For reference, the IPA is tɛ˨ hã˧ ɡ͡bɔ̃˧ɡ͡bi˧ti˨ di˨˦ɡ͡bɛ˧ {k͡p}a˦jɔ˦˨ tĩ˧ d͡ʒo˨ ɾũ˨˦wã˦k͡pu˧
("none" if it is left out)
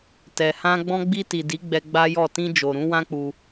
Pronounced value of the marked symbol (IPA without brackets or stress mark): ɡ͡b